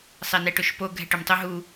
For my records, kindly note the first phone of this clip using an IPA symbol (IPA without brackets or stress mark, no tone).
sˤ